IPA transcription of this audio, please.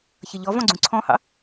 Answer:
çʌʎɔvɔ̃ ɡ͡ǀũǀʰɔ̃hɑ̰

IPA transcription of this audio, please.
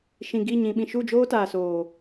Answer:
ʃĩ˨ɡi˦˨ ɲĩ˨ɓĩ˨ ʃu˦˨d͡ʒoː˦taː˨soː˨

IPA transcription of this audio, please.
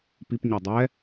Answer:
pip ɲodˤɛ

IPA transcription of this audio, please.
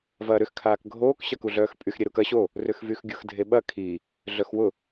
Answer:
vɐːɾʏx kʰaːkɡʱoːk ɕɐkuɮœːxpʼyx ɾʲeɾukɐ ɕo | rʏxvyxɡʲʊx dʱeɓɐ kʰi | ɮœxwʊ

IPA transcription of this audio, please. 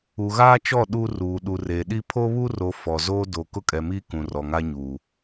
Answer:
u˨ɣaː˦t͡ʃɔ˦˨ ɗu˦ ruː˨ ɗu˨reː˨ɗi˦ pʰo˦βu˦ro˨ fɔ˨zoː˦ do˨ kʊ˦kʼɛ˨miː˦ kũ˨rɔ˨ŋa˦ ɲuː˨

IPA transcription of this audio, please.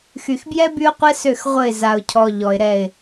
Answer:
xy˨xbjɛ˦ by˦ʊ̯qʷɛ˦sø˦˨x ʁʷə˦˨ɪ̯ za˨ʊ̯cʰɔ˨ ʎɔ˨ɪ̯ɾɛ˦˨ɪ̯

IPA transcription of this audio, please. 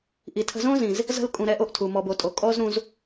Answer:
ʔi˨tʰə̤˧ zõ˦zĩ˨z | zə̤˦l kʼũ˧ɾɛ˦ʔo˦ʔtʰu˨ mɔ˨bo˨ tʼo˨ kʼɔ˦zɾũ˧z

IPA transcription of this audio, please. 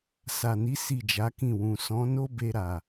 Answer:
sa˨ni˨˦ si˦˨d͡ʒa˨˦kĩ˦˨wũ˨ sɔ̃˨˦ no˦ be˧ɾa˨

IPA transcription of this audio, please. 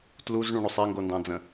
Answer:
tluzɳũɳosˤ eŋɡondɑ̃d͡zə̃

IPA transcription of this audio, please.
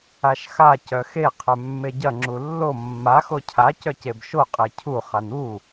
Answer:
aʃxa cœxe qʰœmːeɟɐ ŋ͡ǁulːo mːax ocʰa cœcebʃo qʼecʰu χanu

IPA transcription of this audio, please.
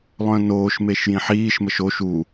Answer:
lˠœ̃noːʃmeʃ jĩħiːʃməʃ oʃ u

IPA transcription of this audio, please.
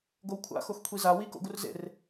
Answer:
ɡowkʷʰa̰ xoxkʷʰiza wiko̰ ɡurzḛr

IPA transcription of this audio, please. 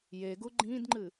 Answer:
jeɡu ɡ͡ǃĩdŋ͡ǃɨ

